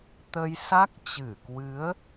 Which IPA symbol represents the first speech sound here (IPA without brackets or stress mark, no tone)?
t̪